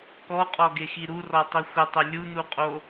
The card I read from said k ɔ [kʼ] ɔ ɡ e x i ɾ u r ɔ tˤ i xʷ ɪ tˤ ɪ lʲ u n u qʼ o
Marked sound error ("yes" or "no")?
yes